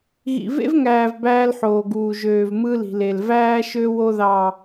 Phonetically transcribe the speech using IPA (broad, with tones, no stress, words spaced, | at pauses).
ɣḭ˨vḛ˦vŋæː˨v bæː˦lħoː˨ɡuː˨ ʒøː˨vmɯ˦li̤˨le˨l væː˦ʃø˦ wo˦ðɑ˨